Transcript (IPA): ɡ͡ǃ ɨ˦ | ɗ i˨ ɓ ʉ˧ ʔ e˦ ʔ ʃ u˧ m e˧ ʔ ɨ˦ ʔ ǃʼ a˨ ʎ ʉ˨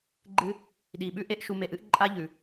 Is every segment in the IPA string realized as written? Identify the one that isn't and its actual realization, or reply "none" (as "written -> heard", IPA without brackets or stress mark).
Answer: a˨ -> a˦